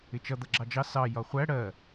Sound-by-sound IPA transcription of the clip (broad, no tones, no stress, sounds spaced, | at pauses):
ɪ t͡ʃ ʌ d̪ ʌ ɡ͡ǁ ɑ d͡ʒ ɑ s ɑ j ɒ χʷ æ ɽ ɜ